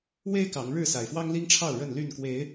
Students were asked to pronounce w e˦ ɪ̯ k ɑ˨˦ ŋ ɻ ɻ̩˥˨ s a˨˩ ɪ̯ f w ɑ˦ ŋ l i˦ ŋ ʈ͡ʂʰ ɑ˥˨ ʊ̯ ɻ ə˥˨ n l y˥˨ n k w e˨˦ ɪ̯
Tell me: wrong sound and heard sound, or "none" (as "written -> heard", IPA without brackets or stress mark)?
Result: none